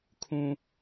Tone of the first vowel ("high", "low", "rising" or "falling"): high